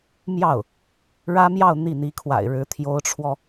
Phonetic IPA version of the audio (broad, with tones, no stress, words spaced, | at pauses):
mjɑ˥˩ʊ̯ | ɻä˥mjɑ˥˧ʊ̯ n̪i˥˩n̪i˧˥kʰwa̰˨˩ɪ̯ɻɻ̩˧˥ t̪ʰjo˧˥ʊ̯ʈ͡ʂʰwɔ˧